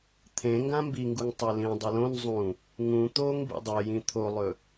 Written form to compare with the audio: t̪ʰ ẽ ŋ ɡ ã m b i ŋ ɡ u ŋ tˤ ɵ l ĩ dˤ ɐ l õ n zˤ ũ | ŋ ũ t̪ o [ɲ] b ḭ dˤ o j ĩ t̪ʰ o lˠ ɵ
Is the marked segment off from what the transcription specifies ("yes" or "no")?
yes